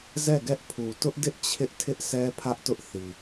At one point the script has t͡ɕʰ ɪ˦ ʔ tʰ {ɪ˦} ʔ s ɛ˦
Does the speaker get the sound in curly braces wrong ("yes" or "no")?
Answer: no